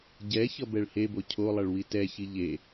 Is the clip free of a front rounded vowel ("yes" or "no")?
yes